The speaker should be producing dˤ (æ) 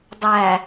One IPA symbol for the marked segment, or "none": æ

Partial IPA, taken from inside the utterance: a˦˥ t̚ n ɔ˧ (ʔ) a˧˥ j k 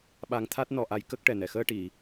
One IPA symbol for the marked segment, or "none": ʔ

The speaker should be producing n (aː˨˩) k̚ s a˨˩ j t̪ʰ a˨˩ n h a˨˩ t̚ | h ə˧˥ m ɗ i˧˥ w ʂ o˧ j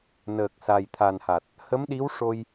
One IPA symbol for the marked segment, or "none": əː˨˩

